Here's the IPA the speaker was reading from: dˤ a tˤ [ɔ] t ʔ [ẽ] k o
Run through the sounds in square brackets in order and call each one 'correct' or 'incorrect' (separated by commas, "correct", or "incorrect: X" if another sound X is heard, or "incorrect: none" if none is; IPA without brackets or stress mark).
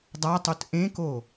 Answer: incorrect: o, correct